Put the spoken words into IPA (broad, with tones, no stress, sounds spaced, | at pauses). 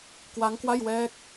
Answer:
k w a˦˥ ŋ k w a˥˩ j w ɛː˦˥ k̚